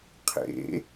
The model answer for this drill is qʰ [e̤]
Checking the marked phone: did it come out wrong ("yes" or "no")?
yes